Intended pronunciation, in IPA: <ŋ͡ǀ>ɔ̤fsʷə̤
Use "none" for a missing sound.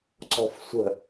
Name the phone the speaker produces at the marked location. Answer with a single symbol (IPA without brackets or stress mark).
ǀ